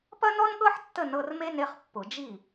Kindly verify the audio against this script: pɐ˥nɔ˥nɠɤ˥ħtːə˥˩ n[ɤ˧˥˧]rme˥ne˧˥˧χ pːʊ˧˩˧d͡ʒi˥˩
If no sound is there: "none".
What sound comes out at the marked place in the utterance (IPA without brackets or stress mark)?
ɤ˧˥˧